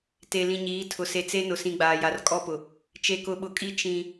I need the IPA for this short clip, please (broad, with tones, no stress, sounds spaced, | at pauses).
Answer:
t e˨ l ĩ˨ ɲ iː˨˦ tʰ ʊ˨ s e˨ t͡s e˦ n ʊ˨ s ĩ˨ ɡ͡b aː˨ j a˨ r kʼ ɔ˦ p ʊ˨ | t͡ʃ e˨ k ʊ˨ ɓ ʊ˨ kʼ i˦ t͡ʃ ĩ˦